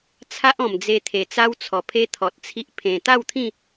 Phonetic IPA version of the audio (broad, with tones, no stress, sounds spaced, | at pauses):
t͡sʰ a˦ ʔ ɔ̃˨˩ m d͡z e˧ t̪ʰ e˨˩ t͡s a˦ w t͡sʰ ɔ˨˩ pʰ e˦ t̪ʰ ɔ˨ t̚ t͡sʰ i˦ ʔ pʰ ẽ˨˩ t̪ a˥˧ w t̪ʰ ĩ˥˧